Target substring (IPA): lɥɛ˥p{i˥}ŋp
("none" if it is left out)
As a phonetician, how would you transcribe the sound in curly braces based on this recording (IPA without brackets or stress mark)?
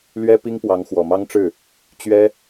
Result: i˥